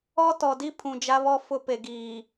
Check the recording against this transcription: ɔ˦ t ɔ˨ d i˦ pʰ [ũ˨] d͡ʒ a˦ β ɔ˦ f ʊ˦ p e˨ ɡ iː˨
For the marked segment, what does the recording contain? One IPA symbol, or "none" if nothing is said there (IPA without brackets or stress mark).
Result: ũ˨